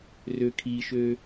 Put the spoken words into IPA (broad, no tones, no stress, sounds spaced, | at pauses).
r ø kʰ i ʃ ø